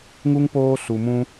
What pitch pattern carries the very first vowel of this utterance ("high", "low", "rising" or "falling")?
high